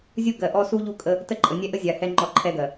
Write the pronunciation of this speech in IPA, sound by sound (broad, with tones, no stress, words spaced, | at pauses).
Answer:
zʲu˦ɡɜ˨ʔɔ˦ su˦ʎu˦kʼə˦ | tə˦ǃʼə˨nʲɛ˦ʔə˦ zʲa˨hɛ˦ ŋ͡ǃɔ˦˨ǃʰɛ˦ɡɜ˨